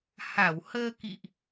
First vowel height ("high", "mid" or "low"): low